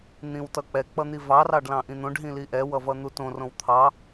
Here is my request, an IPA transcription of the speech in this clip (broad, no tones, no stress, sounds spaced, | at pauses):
n̪ ĩ w t ʌ k͡p ɛ k͡p ʌ n̪ i v ɑ r ɑ ɖ l ɑ̃ ʔ ĩ n̪ õ ɖ ɦ ĩ l i ʔ ɛ w ʌ v ʌ n̪ u t õ r õ w t̪ʰ ɑ